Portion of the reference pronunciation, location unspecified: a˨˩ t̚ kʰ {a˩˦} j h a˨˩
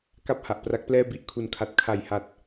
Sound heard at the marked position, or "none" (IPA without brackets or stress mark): a˨˩